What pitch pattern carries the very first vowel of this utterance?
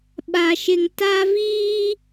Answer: low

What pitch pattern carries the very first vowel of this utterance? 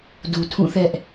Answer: low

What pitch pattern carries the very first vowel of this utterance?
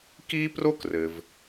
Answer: high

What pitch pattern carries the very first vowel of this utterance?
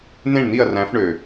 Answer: falling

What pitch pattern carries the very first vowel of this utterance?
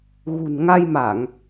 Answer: low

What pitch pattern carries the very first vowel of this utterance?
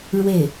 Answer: falling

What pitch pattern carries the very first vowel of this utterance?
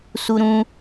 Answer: high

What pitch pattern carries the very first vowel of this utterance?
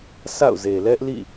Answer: falling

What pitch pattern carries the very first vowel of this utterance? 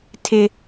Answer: high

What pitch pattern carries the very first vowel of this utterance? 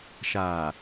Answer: low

